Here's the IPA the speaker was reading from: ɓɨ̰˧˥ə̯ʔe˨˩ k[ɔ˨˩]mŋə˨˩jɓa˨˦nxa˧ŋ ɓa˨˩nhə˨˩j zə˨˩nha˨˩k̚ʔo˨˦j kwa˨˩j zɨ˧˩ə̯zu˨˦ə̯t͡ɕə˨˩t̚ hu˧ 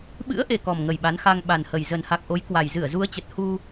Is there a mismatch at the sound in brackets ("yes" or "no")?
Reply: no